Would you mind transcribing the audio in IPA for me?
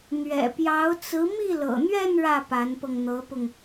n̪ ɥ ɛ̰˨˩ p j ɑ˧˥ ʊ̯ t͡s ɹ̩˧˥ m i˥˩ l ɤ̰˨˩ n̪ ɥ ɛ˥˧ n ɻ ä˥˩ p a˧˥ n p ɤ˧ ŋ n̪ ɤ˧˥ p ʊ˧ ŋ

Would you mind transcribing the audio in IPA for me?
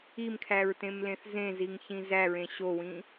i m kʰ æ ɹ t ẽ m l ẽ θ z ẽ z i ŋ ç ĩ z æ ɹ ẽ ɕ o w ĩ

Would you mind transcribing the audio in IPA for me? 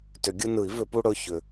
t ʏ˨˩˦ ɡʲ ɯ˦ n ɯ˨˩˦ i̯ v ʏ˨˩˦ p u˦ ɽ ɵ˩˧˩ ç ʏ˨˩˦

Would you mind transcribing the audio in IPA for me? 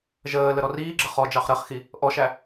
ʒ əː l ə ɾ ɔ r iː ɡ͡ǁ ə χ ɔ d͡ʒ ɑ χ ɾ ɜ χ x i | ʔ ɔ ʃ æ

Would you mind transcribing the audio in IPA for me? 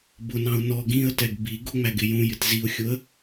b ʊ n ɑ̃ ʊ̯ n ɔ ɡ ĩ ə̯ t ɛ ɡ b i ɡ ʊ ŋ͡m æ ɡ ɪ j ũ j ɪ t z i ʊ̯ xʲ ʊ ə̯

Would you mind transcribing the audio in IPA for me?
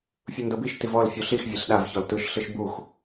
fʲ ɯ n d ɤ b i ʃ t i v ɔ l fʲ u ɬ i x vʲ e ɬ ɗ a v ç ɔ l t ɯ ʃ ɬ ɯ ʃ b u x

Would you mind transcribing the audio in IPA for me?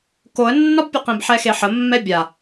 k o ə̯ nː ɒ b pʲ ə q ẽ b ħ ɛ x e ħ ə mː ɛ bʲ a

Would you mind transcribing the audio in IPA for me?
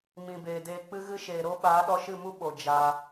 m ĩ˨ b eː˨ d eː˧ k͡p ɨ˦ ɣ ɨ˦ ʃ eː˨ ɾ o˦ ɓ aː˨˦ ɗ ɔ˧ ʃ ɨ˦˨ m u˦ ɓ o˨ d͡ʒ aː˧

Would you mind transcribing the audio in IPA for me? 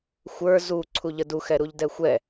xʷ ə˞ z u ǀʰ u ʎ ə d u x ɛ ɾ u ʎ d ɛ xʷ ɛ

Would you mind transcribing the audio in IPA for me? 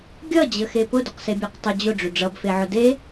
ɡʲ ʌ d͡ʑ ə x e p ʊ d ʊ q s e bʲ a q tˤ ə d͡ʑ ʊ ɖ͡ʐ ʏ ɖ͡ʐ ʌ b f e ʕ ʊ d e

